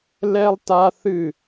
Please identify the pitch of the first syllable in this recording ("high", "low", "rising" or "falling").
high